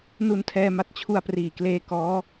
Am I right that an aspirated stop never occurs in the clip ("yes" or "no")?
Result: no